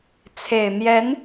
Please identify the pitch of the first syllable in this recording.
low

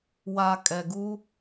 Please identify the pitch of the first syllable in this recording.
low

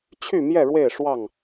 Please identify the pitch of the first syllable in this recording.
falling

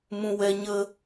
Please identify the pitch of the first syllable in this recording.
high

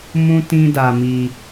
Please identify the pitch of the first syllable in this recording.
high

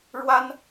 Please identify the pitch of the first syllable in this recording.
high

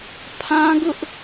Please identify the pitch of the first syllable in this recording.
high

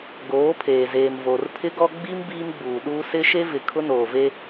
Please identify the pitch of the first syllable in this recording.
rising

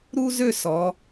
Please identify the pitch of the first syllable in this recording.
high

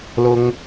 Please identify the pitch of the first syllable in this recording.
high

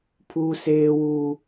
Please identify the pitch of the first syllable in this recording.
high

